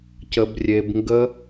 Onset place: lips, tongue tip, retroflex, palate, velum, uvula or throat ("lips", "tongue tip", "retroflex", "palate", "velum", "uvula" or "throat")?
palate